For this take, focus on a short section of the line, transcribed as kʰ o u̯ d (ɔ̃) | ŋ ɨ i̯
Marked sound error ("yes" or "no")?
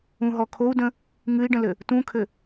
yes